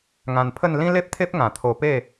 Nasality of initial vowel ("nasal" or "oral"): nasal